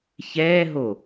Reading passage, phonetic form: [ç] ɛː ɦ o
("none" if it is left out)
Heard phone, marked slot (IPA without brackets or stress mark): ç